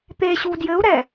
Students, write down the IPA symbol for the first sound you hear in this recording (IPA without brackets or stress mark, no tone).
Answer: t̪